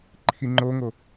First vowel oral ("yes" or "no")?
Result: yes